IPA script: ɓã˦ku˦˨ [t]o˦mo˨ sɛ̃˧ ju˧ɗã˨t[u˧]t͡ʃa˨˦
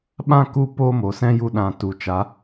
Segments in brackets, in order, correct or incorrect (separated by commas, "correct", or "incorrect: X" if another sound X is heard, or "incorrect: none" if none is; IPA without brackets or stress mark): incorrect: p, incorrect: u˨